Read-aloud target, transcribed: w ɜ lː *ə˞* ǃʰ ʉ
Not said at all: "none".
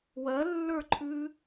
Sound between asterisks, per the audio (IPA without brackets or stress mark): ə˞